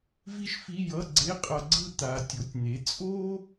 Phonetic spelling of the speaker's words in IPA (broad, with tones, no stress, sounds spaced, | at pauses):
v i˥ ʃ f i˧˥˧ j ʌ˧˥˧ ɡ͡ǀ e˧˥˧ qʼ ʌ˨ ɡ͡ǀ ɯ˦˨ t̪ a˨ tʲ o˩˥ tʲ n̪ e˩˥ t͡sʼ o˥